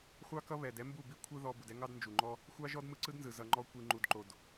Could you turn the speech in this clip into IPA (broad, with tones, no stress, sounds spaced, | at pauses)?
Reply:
χʷ ɑ˦ k ʌ˦ β ɛ˧ d ɛ˦ m b u˦˨ b i˦ kʷʰ ɯ˦ ð ɔ˧ b u˨ d ɛ˦ ŋ ɑ˦ d n d͡ʒ u˨ ŋ͡ǃ ɔ˦ | xʷ ɑ˦ ʒ ɔ˦ d m ɯ˧ ǀ ɯ˦ d n z ɯ˨ z ʌ˧ ŋ͡ǃ ɔ˦ kʷ i˧ ŋ͡ǃ u˧ d ǃ o˧ d